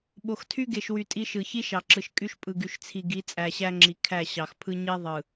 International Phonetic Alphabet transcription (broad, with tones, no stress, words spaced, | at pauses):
ɓo˨xtʰy˦ɡe˨ʃwy˨ tʼi˦ʃɯ˨ çi˦ʃɑ˨ǁɯ˨ʃ kʼy˦ʃpʼɯ˨ ɡy˨ʃt͡sʰi˨ɡi˨˦ t͡sʼæ˨ɕæ˦ŋ͡ǁi˨kʰæ˦˨ ɕɑ˨xpʰɯ˦ɲi˦ðˤɯ˨